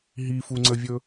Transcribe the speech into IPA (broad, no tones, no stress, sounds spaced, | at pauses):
ɦ i f u ŋ͡ǀ ə vʲ ɵ